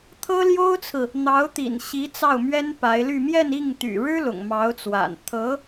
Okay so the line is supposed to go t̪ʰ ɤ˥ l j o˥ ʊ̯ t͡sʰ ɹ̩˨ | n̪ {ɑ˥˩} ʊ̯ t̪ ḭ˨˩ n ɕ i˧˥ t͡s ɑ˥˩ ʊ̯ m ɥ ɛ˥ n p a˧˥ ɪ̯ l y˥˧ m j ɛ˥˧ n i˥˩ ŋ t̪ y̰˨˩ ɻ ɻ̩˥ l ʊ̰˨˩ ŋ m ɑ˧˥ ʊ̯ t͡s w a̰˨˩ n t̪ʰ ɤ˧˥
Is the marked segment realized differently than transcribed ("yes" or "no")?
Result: yes